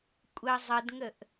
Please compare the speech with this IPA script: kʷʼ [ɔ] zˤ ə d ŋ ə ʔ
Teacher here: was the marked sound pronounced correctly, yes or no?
no